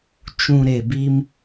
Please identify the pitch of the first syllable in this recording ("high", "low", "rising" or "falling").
low